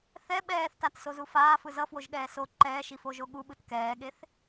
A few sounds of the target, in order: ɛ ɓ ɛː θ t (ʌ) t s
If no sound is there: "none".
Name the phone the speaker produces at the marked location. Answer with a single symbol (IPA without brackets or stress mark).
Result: a